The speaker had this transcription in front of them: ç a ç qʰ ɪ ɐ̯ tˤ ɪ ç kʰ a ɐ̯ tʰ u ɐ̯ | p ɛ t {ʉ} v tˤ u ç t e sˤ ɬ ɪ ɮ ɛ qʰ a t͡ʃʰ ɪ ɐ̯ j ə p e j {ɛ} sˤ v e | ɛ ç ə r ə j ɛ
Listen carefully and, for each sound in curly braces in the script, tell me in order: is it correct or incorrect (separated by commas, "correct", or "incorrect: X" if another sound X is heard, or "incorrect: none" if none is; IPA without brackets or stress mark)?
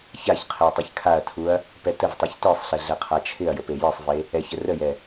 incorrect: ə, incorrect: e